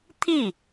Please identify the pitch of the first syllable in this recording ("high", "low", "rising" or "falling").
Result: falling